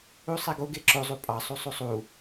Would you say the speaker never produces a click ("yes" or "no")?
no